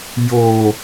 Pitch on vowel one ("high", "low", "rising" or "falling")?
low